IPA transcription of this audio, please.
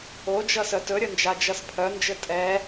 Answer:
o d͡ʒ ʌ s œ t ɵ ɾʲ ɵ n d͡ʒ a d͡ʒ ʌ s pʰ œ n d͡ʒ ɘ tʼ ɛ

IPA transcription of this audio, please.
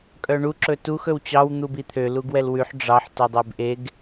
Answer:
kʼ œ ɳ u ǁ ɵ t u x ɵ w t͡ɕ ɑ w n̪ u b i t̪ʰ ø l u ɡ w ɛ l w ʉ ħ ɖ͡ʐ ɑ ħ t o dˤ e b ʔ e ɡ

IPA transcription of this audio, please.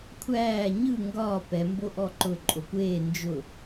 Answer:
kʷʰ æː ɲ ɯ ŋ ɡ ɒː p ɛ m b o ʔ ɔ ǃ ʊ ǃʼ o kʷ eː n d͡ʒ ʊ

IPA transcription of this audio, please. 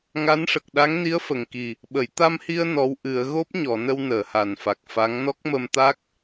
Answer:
ŋ a˧˥ n ʂ ə˨˩ k̚ ɗ a˧˥ ŋ n i˧˥ ə̯ f ə˨˩ ŋ k i˨˩ | ɓ ə˨˩˨ j t̪ a˧ m h i˧ ə̯ n ɔ˧˥ w ʔ ɨ˨˩˦ ə̯ ɣ o˦˥ p̚ ɲ ɔ˨˩˨ n ə˧ w n əː˨˩˨ h a˨˩ n f a˨˩ k̚ f a˧˥ ŋ n ɔ˦˥ k̚ m ə˧ m t̪ a˦˥ k̚

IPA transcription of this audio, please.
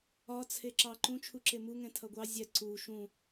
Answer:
ɒ t͡sʰ e ǁ ɑ ǃ ũ t͡ʃʰ u ǁ e m u ŋ ɛ̃ tʰ ʌ ɡʷ ɑ zʲ ɛ ǀ u ʃ ũ

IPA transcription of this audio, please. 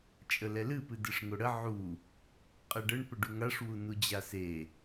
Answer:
t͡ʃʼ ə l ɛ l ɨ p ɨ d ɨ ʂ ŋ o ɽ ə ʕ u | qʼ ɛ ɖ ə ɳ p ə ɖ u ŋ a ʂ w u n u d͡ʑ a s e

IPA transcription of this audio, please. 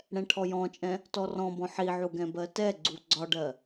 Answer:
ɽ ɛ̃ ʈʰ ɔ j ɔ̃ t͡ʃʼ ɛ̃ | t ɔ r ɔ̃ b ɔ̃ ħ i ʕ u ɡ ɛ̃ b ɜ t ɛ ɡ͡ǀ u ɡ͡ǀ ɒ ɖ ɜ

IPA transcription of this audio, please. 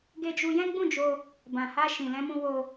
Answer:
ɡ e˧ d͡ʒ u˧ j ɛ̃˦ ɡ͡b ũ˦˨ d͡ʒ o˧ | b ã˨ h a˧ ʃ ĩ˨ l ɛ̃˧ m ũ˧ w o˧

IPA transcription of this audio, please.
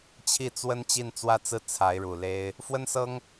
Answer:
t͡ɕʰ i˥˩ t͡s w ə˥ n t͡ɕ i˥˧ n t͡s w ä˥˧ t͡s ɹ̩˥˩ t͡sʰ a˧˥ ɪ̯ ɻ u˨˩ l e˥ ɪ̯ | f w ə˥ n s ɤ˥ ŋ

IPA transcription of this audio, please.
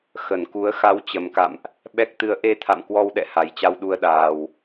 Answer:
x ə˧˩ n k u˨˦ ə̯ x a˨˦ w t͡ɕ ə˨˩ m k a̰˧˨ m ʔ | ɓ ɛ˦˥ k̚ t̪ ɨ˧ ə̯ ʔ e˧ t̪ʰ a̰˧˨ m k w ɔ˧ w ɗ ɛ̰˧˨ h a˨˩ j t͡ɕ a˧ w ɗ u˧ ə̯ ɗ aː˨˩ w

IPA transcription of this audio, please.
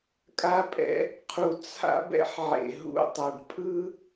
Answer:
kʼ a˦ pʼ ɛ̰˦ | qʰ u˨ t͡sʰ a̰˦ b ɛ̰˦ ħ ʕ ḛ˨ ɦ ṵ˦˨ tˤ a˨ ɖ pʼ ɯ˦

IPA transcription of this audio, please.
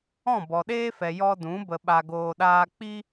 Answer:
ɔ̃˦˨ b ɔ˨ ɗ eː˦ f ɛ˨ j ɔ˧ d ũ˨˦ b ə˧ ɓ a˧ ɡ oː˧ ɗ aː˦ k͡p i˦

